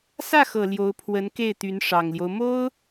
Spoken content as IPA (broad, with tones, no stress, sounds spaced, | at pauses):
s ä˥˩ x ɤ˨˩ l j o˧˥ ʊ̯ pʰ w ə˧˥ n k e˥˩ ɪ̯ t̪ y˧˥ n ʂ ɑ˨˩ ŋ l j o˦ ʊ̯ m o˥ ʊ̯